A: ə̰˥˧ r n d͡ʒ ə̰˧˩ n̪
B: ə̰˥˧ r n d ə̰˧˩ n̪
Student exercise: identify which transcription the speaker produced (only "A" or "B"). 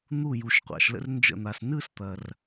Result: A